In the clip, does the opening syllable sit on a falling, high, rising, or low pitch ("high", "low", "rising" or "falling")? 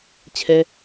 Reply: high